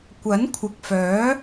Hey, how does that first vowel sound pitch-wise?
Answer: rising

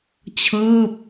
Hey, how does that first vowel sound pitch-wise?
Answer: falling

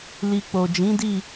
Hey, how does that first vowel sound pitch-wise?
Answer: low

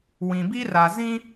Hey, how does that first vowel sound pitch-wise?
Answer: low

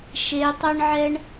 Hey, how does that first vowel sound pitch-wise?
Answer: rising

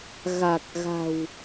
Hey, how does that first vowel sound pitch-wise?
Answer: low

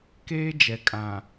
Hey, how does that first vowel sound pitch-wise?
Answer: high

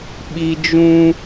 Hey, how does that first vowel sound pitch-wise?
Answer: high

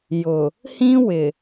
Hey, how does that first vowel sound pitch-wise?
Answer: low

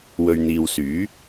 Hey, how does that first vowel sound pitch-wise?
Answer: low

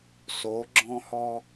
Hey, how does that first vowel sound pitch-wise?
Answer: rising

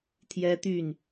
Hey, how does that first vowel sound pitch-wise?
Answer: high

